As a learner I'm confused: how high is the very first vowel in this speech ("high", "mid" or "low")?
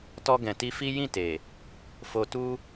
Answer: mid